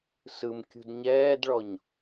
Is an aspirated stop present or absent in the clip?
absent